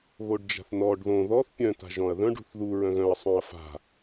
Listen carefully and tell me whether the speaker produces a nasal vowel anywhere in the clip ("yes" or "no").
yes